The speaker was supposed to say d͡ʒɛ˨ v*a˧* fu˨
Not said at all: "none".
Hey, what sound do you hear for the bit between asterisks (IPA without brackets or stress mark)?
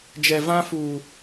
ã˧